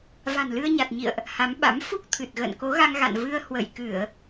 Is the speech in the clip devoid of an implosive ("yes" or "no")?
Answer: no